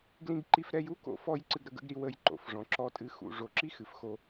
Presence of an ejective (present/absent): present